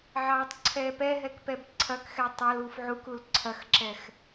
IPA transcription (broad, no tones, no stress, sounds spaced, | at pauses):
ʕ ɑː tˤ ǀʰ ɛ p ɛ ɦ ɛ k p ɛ b ǀʰ ɐ k x ɛ tˤ ɐ l uː f ʕ u k u l ǀʰ ɐ x ǁ ɛ x